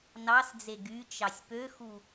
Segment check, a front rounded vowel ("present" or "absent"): present